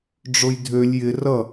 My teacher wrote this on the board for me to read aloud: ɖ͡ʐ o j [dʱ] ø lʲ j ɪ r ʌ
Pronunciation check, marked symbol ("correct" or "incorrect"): correct